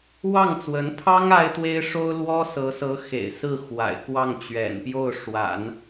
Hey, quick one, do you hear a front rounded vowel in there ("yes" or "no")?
no